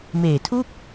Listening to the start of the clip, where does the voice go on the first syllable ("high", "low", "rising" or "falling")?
low